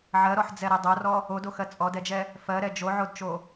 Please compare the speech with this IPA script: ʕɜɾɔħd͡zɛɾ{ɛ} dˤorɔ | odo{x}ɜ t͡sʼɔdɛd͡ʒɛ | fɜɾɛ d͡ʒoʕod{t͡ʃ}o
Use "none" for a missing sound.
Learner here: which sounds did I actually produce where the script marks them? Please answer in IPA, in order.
ɛ, x, t͡ʃ

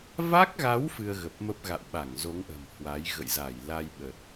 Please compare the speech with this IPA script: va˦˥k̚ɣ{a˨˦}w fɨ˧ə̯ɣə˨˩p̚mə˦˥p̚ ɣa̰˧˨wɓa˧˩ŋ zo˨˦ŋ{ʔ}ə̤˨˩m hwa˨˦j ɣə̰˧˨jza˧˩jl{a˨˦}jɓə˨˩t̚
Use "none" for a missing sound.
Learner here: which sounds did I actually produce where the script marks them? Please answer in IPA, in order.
a˨˦, ʔ, a˧

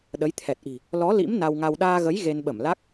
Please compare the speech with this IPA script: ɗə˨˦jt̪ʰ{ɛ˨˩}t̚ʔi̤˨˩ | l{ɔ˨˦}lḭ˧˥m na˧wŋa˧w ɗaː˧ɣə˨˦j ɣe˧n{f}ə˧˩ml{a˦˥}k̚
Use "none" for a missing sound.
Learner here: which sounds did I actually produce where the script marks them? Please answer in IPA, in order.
ɛ˨˩, ɔ˨˦, ɓ, a˦˥

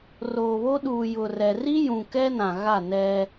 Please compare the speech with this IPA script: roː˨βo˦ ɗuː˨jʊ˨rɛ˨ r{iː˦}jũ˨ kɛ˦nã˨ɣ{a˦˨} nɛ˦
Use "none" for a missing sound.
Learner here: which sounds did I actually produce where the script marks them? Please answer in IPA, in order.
i˦, a˦˨

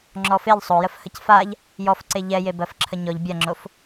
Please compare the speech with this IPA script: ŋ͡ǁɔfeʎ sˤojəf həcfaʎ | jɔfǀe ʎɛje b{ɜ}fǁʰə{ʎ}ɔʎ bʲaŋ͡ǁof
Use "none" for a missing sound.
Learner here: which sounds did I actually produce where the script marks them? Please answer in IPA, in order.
ɜ, ɲ

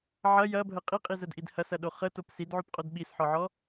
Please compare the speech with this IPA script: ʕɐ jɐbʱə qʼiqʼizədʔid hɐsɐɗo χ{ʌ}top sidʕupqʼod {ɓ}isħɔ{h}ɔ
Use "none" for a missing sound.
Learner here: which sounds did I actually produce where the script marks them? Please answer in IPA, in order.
ə, ɓ, ʕ

